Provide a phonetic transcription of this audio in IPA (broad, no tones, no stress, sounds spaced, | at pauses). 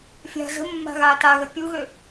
fʲ a̤ z ə̤ mː a̤ ɣ aː t a ɣ ə pʲ u ɣ ø